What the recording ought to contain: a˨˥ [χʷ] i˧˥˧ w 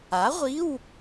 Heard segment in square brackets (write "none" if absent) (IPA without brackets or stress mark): ʁʷ